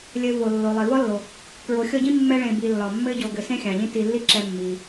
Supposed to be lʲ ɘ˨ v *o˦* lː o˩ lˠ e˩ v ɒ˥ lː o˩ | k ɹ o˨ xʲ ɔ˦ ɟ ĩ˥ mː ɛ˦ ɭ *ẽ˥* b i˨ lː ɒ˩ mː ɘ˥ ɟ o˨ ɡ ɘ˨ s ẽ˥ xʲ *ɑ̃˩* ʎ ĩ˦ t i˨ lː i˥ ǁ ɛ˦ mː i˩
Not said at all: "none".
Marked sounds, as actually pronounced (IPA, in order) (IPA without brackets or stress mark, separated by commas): o˩, ẽ˨, ɑ̃˩